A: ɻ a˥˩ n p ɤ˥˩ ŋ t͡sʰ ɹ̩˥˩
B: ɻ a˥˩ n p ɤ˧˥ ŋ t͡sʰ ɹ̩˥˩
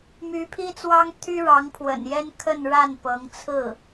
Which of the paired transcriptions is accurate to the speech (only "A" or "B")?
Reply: B